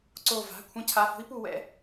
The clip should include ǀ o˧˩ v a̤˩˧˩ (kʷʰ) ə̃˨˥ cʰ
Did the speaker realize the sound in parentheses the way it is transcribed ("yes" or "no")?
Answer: yes